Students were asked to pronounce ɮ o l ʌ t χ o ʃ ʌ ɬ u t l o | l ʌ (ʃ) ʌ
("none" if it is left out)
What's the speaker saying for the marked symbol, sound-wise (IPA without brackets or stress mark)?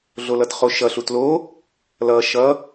ʃ